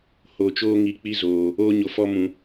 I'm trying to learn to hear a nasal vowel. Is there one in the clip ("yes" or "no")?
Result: yes